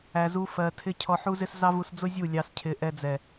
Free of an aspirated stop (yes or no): no